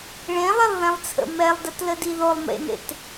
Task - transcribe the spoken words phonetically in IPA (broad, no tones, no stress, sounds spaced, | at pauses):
ɭ ẽ lˠ ɛ lˠ ð ẽ lˠ t͡sʰ ə̰ m ɛ lˠ d ə t l ə d i ð o lˠ m ḛ n ḛ t